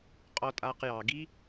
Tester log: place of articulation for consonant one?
uvular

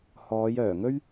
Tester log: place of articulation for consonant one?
glottal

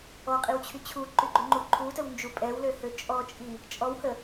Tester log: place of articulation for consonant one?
uvular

